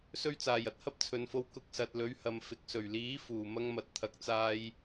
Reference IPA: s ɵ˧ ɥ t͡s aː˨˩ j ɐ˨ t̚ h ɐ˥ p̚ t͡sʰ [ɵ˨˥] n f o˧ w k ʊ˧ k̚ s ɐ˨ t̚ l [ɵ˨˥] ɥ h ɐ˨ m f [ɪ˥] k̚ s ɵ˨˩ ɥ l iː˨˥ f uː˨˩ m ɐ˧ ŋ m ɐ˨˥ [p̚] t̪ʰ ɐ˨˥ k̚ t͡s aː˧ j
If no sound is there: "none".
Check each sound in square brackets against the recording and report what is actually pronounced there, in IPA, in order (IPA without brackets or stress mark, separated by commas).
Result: ɵ˨, ɵ˨˥, ɪ˨˥, t̚